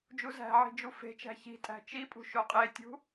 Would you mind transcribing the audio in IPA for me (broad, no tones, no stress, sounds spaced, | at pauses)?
d͡ʒ u z æ̤ ʕ i̤ d͡ʒ u f e̤ t͡ʃ æ̤ ç i̤ tʼ æ̤ t͡ʃ i pʼ ṳ ʃ o qʼ e tʲ ṳ